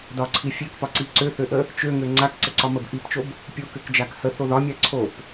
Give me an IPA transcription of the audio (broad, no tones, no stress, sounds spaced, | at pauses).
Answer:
d ɒ ǀʰ i fʲ ø k p ɒ ǀ i ǀ ø θ ø ʔ ə | t͡ʃ ø ŋ ø ŋ͡ǀ a k ǀ ə ǀ ɒ m ə b ʔ i p t͡ʃ o b | pʲ o k ø k d͡ʒ a k h ə θ o ð ɒ mʲ a ǀʰ o p